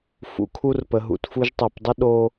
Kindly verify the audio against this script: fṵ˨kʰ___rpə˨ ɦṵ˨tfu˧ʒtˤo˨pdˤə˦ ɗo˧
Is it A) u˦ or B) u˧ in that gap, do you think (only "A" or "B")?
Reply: B